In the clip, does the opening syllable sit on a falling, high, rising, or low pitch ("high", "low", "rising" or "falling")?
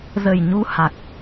low